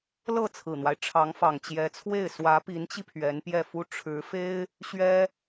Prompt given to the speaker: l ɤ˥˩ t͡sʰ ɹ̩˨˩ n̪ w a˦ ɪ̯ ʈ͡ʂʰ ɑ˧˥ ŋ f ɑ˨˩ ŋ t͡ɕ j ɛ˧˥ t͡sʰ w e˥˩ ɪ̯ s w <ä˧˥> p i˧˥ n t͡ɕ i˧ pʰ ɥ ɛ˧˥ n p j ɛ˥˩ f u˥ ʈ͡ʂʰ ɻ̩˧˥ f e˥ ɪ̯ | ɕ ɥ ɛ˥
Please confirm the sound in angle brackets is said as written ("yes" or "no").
yes